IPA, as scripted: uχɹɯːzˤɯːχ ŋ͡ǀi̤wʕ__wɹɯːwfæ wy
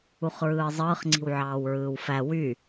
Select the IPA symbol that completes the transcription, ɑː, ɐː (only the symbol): ɑː